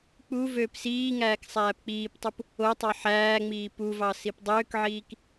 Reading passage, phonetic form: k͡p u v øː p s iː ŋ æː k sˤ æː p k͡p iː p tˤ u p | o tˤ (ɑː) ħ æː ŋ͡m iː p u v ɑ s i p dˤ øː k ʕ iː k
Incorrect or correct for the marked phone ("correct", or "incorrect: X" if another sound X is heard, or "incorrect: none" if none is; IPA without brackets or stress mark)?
incorrect: ɑ